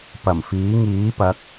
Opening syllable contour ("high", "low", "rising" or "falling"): low